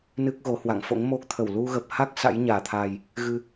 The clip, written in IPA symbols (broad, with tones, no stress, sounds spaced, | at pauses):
n ɨ˦˥ k̚ ɣ o˨˦ h w a̰˧˨ ŋ f o̰˧˥ ŋ m o˦˥ k̚ t̪ʰ ə˧˩ w l u˧ ɣ ə˨˩ p̚ h a˦˥ k̚ s a̰˧˥ j ɲ aː˧˩ t̪ʰ aː˨˩ j | ɣ ɨ˧